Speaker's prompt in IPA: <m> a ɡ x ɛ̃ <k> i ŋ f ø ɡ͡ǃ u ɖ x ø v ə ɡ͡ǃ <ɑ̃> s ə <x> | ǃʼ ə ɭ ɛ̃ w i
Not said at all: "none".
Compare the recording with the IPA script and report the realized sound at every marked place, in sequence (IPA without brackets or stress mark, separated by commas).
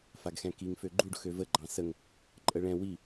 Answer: f, k, ɑ̃, ŋ